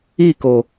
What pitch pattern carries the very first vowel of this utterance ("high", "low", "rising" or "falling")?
falling